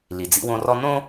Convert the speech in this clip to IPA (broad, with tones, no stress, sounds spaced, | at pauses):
l i˩ d͡z ḭ˦ w õ˦ r ɔ˦ n õ˦